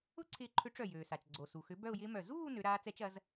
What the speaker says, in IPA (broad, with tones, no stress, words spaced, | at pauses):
ʊ˥˧ǀʰɪː˧˩ǃʰʏ˨˥ ʈ͡ʂœ˧˩jøː˩sa˩t͡ʃɡ͡ǀo˩ su˩xʏ˨˥ bœ˥˧ʊ̯jɪː˦˥mœ˧˩ zuː˥˧ nø˨˥ ɾaː˦˥t͡sɛ˦˥t͡ʃ ɐ˨˥z